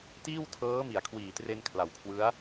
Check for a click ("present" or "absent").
absent